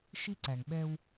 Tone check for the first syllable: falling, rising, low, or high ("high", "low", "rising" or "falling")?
high